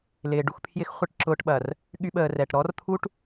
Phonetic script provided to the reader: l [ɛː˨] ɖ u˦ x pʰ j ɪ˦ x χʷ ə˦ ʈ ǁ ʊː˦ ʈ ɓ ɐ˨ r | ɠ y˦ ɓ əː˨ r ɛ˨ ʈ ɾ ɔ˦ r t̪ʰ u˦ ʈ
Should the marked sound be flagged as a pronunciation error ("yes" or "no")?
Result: yes